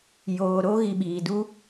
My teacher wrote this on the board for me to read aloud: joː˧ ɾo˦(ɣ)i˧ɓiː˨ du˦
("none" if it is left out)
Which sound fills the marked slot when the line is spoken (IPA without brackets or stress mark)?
ɣ